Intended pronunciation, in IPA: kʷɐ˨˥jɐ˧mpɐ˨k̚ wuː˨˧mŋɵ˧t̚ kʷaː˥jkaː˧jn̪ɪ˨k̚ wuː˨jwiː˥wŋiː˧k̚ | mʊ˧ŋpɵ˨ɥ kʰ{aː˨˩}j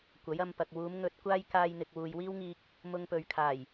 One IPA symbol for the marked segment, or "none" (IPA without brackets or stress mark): aː˨˩